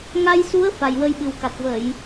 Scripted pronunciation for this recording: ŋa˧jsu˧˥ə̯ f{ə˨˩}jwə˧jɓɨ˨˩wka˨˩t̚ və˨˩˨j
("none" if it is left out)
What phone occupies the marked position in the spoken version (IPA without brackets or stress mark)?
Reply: a˨˩